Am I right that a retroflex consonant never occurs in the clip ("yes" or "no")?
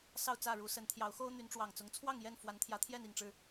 no